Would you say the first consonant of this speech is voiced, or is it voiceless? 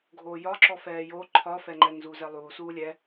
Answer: voiced